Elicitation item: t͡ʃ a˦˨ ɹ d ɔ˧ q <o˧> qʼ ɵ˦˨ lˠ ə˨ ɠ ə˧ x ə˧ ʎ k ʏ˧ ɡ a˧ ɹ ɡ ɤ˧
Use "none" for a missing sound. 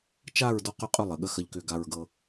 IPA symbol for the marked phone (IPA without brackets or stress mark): ɵ˧